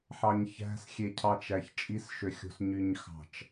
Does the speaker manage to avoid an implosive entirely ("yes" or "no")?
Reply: yes